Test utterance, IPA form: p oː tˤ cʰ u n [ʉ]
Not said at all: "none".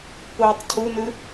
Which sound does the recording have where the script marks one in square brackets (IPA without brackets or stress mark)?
ʉ